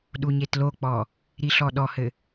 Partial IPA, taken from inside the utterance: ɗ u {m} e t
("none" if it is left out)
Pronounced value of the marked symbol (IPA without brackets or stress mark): ɲ